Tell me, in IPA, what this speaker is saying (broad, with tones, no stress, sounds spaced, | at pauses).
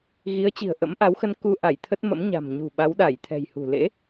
ɣ i˨˦ ə̯ t͡ɕ i̤˨˩ ə̯ ʔ ə̰˧˥ m ʔ a˨˦ w x ə˧ n k u˧ ʔ a˧˩ j t̪ʰ ə˦˥ t̚ m ə̰˧˥ m ɲ a̤˨˩ m ɲ ṳ˨˩ ɓ a˨˦ w ɗ a˧˩ j t̪ʰ ɛ̤˨˩ j h ṳ˨˩ l ḛ˧˥